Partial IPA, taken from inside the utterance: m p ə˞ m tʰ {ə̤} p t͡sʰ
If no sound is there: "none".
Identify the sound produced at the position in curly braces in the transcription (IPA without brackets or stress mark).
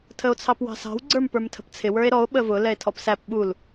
ə̤